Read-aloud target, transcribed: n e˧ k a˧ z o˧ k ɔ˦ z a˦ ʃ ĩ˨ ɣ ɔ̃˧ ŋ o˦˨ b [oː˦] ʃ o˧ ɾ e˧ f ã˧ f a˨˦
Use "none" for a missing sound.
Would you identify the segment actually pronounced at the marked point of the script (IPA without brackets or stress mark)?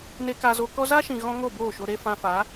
oː˦˨